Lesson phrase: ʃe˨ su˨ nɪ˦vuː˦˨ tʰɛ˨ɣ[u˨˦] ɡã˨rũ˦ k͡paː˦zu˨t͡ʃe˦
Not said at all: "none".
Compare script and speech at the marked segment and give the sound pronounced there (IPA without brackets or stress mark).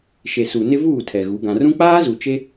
u˨˦